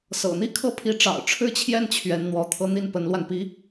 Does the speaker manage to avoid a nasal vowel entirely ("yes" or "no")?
yes